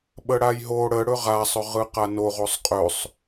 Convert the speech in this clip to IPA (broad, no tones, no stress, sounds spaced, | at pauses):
ɓ ə ɽ a j ɦ o ɽ ə ɽ ɵ ʁ a sˤ ɵ ʁ ɯ q a n o ʁ o sˤ qʼ ɵ sˤ